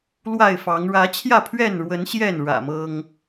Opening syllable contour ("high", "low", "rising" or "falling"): falling